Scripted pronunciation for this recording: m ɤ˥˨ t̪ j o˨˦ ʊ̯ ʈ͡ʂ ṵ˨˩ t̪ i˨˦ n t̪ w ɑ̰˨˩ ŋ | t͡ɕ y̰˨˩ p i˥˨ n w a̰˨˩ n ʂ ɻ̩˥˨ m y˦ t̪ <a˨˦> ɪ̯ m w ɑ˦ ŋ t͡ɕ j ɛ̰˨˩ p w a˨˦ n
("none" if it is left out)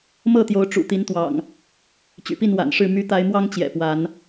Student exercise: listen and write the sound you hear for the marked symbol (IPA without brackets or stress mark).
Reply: a˦